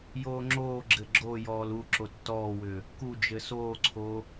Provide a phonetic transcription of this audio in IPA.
j oː ŋ͡ǁ oː ɡ͡ǁ ɘ ɡ͡ǁ o j ɔː l u ǁ o tː ɔː w ʏː | k u d͡ʒ ɘ s oː ǀʰ oː

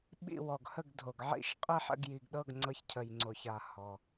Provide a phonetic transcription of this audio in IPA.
ɓ ḭ˧˩ w ɔ˩ ɡ h ə˧˩ ɡ dʱ o˩ ɡ ʕ ḭ˧˩ ʃ qʼ i˧˩ ħ ə̰˧˩ ɡ j i˩ ɡ ɗ ɤ˧˩ ɡ ŋ͡ǀ ɤ˧˩ ç cʰ ə˩ j ŋ͡ǀ o˩ ç a˩ h ɔ˩

